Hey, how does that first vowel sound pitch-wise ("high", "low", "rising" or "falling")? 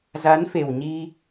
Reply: rising